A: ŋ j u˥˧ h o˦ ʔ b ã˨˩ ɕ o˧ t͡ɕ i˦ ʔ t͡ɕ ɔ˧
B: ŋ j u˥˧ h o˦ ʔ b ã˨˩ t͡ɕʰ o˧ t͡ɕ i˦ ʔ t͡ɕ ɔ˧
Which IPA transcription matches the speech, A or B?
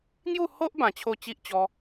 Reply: B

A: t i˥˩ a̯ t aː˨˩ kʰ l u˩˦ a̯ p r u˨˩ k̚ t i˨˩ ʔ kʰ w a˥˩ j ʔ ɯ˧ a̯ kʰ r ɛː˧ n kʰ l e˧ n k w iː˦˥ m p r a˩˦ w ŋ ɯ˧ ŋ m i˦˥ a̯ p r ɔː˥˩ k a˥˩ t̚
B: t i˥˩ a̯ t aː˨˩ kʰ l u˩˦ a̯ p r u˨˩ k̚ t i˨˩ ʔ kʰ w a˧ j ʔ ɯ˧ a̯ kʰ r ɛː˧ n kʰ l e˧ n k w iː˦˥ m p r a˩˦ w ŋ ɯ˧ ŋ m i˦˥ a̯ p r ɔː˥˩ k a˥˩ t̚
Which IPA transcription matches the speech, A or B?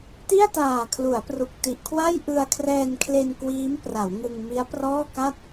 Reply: A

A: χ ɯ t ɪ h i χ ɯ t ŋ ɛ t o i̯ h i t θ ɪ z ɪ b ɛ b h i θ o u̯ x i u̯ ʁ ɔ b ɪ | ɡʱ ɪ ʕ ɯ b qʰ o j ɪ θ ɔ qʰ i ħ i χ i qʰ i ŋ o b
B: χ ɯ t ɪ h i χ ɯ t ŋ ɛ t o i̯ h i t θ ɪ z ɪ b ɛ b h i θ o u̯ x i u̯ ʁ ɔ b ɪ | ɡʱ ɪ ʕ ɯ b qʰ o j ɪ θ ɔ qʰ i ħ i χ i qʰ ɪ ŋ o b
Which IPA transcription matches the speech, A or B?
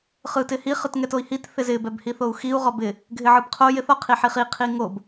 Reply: A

